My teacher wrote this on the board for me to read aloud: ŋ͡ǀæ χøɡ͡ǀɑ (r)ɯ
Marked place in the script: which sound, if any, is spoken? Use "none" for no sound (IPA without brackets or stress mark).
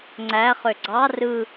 r